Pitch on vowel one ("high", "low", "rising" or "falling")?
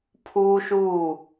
high